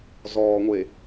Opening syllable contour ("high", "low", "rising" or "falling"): low